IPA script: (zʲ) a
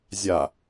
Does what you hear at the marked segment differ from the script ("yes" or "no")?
no